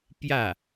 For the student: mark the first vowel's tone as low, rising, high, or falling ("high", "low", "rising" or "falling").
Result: falling